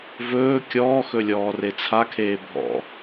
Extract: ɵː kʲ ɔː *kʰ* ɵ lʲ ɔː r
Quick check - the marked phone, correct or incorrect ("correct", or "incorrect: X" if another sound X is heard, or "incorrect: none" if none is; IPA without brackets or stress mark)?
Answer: incorrect: x